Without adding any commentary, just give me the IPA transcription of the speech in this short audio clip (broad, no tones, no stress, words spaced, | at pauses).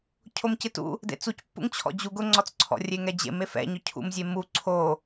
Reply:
cʰomcɪtṵ | dḛt͡sucpːṵŋ t͡ɕʰɔ̰d͡ʑu ɡʊŋ͡ǀɔt͡sǀʰɔ̰ rʲeŋɛd͡ʑḛm efɛ̰ɲʊ cʰṵmzʲe mu ǀʰo